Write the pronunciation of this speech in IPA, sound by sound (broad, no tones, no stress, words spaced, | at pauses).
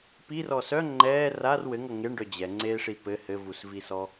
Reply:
pirɔ sœ ŋ͡ǃɛː rar wɘŋʌ ŋeɳɖœ d͡ʑɛŋ͡ǀeːʂi pɘ hɘvusvisɔ